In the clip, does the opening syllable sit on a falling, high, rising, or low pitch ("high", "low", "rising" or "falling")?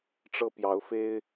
high